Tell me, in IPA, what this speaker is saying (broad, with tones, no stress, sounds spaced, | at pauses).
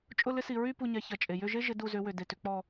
t͡ʃʼ ʊ˥˨ l ɪ˦ s i˩ ɹ y˥˨ p u˧˩ ɲ ɛ˩˧ ç ɐ˩ t͡ʃʼ e˩ j ʏ˥˨ ʒ e˦ ʒ ɪ˩˧ d u˧˩ z ʏ˩˧ w ʏ˩ d e˩ t ʏ˩˧ k͡p ɔ˧˩